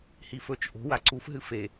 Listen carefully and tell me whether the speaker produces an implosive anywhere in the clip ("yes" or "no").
no